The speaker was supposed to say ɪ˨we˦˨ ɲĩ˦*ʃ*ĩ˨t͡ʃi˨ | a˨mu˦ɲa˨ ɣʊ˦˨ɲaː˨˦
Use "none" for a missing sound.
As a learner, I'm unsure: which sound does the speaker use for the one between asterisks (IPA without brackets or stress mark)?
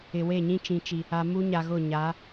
t͡ʃ